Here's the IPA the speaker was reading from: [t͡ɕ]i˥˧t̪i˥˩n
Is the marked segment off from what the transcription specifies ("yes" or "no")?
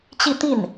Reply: no